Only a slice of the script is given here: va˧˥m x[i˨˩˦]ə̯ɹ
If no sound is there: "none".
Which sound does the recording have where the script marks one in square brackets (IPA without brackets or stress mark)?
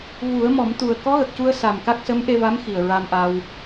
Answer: i˨˩